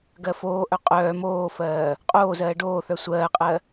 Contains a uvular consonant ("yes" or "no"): yes